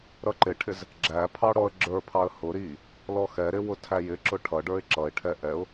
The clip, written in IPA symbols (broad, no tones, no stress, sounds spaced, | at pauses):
ɾ ʌ ǃ ɪ ʈʰ ɪ z | ɡ͡ǁ æ pʰ ɑ ɽ ɔ ə̯ ɡ͡ǁ ə˞ pʰ ɑ ə̯ h ʊ ɾ i | l ɔ x ɛ ɾ ɪ w ʊ tʰ æ j ɪ ǁ ʊ ʈʰ ʌ ɖ ə˞ ɪ̯ ǁ ʌ ɪ̯ ʈʰ ɛ ʔ ɛ ʊ̯